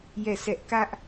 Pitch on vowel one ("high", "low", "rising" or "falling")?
falling